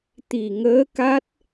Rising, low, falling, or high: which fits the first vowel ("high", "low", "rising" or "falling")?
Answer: low